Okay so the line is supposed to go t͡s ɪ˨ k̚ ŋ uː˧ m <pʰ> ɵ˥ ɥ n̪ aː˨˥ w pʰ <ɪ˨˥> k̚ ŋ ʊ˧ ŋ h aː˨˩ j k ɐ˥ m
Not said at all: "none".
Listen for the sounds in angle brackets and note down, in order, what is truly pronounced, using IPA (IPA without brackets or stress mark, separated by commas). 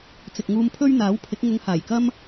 pʰ, ɪ˨˥